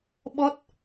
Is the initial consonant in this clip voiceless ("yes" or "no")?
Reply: no